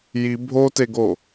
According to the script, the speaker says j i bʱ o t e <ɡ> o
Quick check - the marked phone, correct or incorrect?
correct